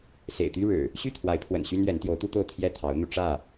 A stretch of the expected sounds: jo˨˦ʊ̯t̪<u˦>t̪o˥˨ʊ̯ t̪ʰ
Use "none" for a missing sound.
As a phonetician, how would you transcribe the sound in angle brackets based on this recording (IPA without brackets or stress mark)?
u˦